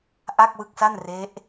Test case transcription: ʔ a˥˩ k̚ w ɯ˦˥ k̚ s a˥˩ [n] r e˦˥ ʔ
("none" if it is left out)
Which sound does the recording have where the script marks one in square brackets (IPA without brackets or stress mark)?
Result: n